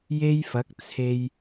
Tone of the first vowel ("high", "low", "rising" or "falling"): high